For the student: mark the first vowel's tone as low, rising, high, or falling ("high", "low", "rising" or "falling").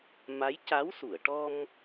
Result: rising